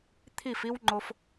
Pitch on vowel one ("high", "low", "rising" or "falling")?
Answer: falling